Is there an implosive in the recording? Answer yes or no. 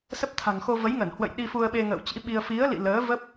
yes